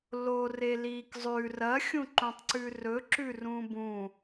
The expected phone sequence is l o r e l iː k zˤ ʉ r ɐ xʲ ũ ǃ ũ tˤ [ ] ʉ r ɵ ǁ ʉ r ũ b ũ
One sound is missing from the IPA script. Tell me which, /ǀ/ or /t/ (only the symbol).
ǀ